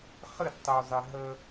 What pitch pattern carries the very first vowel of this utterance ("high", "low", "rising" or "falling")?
falling